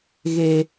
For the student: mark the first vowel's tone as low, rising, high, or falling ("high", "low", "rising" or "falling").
low